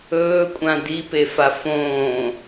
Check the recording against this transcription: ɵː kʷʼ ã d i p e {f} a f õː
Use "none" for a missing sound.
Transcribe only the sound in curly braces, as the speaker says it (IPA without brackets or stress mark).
f